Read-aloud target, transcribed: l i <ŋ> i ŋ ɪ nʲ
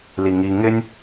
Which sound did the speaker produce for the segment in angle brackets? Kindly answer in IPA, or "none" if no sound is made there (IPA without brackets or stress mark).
ŋ